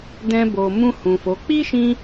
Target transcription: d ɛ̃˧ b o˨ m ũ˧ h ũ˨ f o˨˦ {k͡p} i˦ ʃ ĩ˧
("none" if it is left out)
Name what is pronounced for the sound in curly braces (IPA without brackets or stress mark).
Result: k͡p